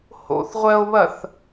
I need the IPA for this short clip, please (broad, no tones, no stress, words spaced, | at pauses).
ho̰θʁʷɜo̯βɐθ